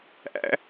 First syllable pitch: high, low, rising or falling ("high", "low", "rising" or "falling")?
high